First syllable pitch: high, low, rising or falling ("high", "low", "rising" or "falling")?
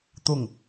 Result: low